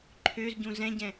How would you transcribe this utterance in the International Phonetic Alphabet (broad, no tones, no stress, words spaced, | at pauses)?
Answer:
ǃʰøzɟũ zɛ̃ɟɛ̃